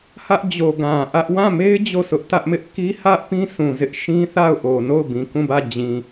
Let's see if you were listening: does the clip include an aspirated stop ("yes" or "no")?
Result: no